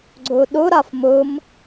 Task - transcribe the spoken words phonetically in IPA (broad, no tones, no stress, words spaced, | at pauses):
ɡ͡ǀɵɗɵ ɾafmɵm